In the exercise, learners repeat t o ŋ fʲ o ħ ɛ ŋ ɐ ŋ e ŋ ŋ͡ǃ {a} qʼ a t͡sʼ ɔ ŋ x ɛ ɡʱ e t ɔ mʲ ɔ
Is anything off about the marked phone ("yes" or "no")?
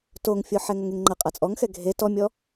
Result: yes